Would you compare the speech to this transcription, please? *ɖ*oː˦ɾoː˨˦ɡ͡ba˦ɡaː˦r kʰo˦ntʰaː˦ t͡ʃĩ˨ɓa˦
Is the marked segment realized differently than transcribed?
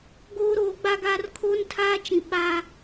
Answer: yes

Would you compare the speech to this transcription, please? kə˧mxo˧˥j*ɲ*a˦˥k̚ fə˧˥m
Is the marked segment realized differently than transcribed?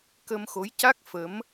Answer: yes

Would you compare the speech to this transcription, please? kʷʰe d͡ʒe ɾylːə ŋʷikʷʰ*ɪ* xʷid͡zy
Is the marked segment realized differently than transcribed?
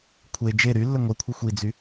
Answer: no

